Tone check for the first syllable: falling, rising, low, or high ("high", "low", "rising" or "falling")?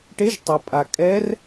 rising